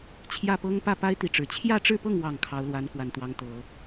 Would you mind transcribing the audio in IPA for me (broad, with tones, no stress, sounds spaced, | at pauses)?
t͡ɕʰ j ä˥˩ p ɤ˥ ŋ p ä˥˩ p a˥ ɪ̯ t̪ i˥˩ ʈ͡ʂ ɻ̩˨˩ t͡ɕʰ j ä˥˧ ʈ͡ʂ ɻ̩˥˧ p ɤ˥˩ ŋ w ɑ˨˩ ŋ kʰ ɑ˧˥ ʊ̯ l w a˧˥ n k w a˨˩ n t̪ w ɑ˧˥ ŋ t̪ ɤ˨˩˦